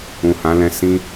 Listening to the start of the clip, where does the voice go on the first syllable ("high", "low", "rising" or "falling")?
low